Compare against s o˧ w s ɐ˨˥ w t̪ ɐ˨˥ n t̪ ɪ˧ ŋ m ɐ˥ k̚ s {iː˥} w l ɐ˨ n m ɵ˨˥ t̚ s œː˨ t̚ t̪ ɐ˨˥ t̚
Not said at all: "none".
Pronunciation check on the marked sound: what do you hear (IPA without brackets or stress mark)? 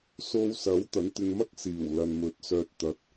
iː˨˩